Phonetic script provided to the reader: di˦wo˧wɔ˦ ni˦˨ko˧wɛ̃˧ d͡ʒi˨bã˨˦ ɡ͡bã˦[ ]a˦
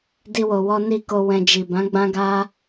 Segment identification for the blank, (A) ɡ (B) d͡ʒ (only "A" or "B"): A